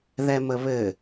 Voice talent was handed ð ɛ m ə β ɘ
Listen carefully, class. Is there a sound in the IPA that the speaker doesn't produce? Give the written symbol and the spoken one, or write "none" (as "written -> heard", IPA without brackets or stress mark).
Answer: none